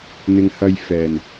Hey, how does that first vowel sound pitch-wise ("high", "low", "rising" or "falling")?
low